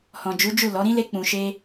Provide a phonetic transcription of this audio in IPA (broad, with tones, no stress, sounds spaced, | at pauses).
h ɔ̃˨ d͡ʒ u˨˦ d͡ʒ u˦˨ l ɔ˨˦ ɾ ĩ˦ l e˦ k͡p ũ˧ ʃ e˦